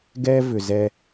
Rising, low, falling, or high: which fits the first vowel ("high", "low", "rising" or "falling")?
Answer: high